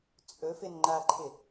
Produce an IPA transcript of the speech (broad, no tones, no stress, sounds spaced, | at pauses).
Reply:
t͡sʼ ɵ f ɪ n ŋ͡ǃ a ǃʰ ɪ